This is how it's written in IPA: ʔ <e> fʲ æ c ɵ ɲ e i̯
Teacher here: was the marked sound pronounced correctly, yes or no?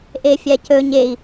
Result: yes